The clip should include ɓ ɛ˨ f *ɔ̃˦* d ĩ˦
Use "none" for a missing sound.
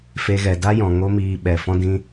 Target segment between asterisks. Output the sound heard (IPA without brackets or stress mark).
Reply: ɔ̃˦